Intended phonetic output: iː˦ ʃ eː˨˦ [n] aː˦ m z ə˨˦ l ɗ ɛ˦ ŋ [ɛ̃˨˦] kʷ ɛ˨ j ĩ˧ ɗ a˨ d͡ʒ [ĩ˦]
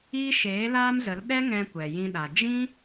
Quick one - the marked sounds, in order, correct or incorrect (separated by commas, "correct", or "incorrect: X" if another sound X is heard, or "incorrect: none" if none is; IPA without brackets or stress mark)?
incorrect: l, incorrect: ɛ̃˧, correct